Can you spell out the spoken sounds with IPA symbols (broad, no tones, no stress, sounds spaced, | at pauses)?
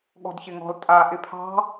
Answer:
ɠ ɔ̤ d ç ɪ ŋ ɔ̤ l tʼ a ʔ ɪ pʰ ɑ̤